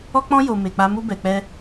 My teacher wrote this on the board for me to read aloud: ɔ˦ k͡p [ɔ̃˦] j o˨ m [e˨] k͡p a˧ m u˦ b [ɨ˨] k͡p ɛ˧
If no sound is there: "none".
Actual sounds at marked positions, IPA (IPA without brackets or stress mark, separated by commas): ɔ̃˦, e˨, ɛ˨